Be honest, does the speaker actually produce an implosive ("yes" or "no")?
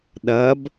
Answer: yes